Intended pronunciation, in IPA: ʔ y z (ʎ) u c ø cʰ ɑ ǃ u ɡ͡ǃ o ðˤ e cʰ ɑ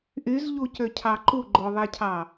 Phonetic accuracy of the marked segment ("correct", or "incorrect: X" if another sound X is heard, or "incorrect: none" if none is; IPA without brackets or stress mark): correct